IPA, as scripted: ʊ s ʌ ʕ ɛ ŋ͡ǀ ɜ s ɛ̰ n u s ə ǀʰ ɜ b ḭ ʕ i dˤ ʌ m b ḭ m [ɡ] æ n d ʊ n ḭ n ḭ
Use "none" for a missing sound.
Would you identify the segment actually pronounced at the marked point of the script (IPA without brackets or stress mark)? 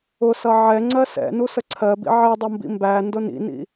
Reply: b